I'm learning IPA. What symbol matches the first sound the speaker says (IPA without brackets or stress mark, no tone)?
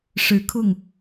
ʂ